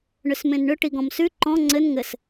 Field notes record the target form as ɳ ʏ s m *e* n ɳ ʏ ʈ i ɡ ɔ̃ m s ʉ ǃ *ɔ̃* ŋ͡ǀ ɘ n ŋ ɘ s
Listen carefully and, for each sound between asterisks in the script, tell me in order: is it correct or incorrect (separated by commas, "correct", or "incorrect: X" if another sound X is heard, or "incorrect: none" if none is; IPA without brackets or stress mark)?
incorrect: ẽ, correct